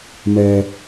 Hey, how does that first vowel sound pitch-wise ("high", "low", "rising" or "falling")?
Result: low